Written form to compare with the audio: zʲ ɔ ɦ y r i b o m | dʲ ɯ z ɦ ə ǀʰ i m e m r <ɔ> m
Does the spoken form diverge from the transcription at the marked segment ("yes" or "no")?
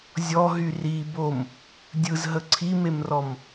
no